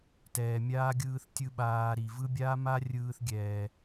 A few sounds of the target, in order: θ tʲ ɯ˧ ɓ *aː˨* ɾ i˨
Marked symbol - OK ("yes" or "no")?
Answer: yes